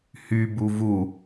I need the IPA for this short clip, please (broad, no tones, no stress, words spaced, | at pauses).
hybu vu